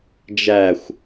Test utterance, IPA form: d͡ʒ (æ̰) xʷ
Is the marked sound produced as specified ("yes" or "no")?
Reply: no